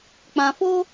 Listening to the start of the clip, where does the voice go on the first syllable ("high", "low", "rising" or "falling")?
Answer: low